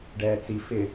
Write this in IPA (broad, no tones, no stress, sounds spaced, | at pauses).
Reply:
ɖ ɛː t͡s i f ɪ